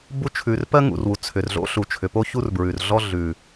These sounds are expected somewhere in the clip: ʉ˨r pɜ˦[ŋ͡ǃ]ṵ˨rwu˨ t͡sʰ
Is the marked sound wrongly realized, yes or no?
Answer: yes